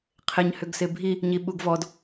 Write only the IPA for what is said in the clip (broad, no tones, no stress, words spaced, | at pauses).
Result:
qʰɪɲ hʏɡsɪbʱi | ɲiɓuɡvɔd